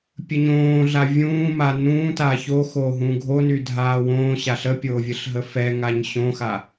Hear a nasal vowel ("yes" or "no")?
yes